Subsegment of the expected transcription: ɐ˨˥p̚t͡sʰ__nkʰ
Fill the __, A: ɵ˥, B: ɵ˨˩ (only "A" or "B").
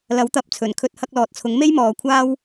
B